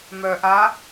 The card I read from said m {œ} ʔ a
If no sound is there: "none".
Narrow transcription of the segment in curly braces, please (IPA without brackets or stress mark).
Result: œ